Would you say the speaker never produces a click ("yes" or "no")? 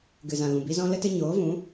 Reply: yes